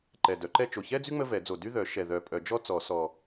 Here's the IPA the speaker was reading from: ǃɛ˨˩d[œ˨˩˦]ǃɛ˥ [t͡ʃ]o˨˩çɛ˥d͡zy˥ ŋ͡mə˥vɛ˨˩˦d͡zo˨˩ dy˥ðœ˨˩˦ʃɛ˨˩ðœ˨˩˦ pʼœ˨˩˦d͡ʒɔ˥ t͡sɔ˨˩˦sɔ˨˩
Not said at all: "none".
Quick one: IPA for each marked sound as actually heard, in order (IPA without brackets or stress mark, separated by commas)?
œ˨˩˦, t͡ʃ